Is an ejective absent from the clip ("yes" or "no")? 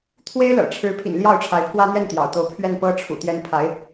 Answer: yes